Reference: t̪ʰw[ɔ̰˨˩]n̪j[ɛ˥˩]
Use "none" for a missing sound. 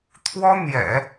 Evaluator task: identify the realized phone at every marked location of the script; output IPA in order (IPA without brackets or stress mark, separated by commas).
ɔ˥, ɛ̰˨˩˦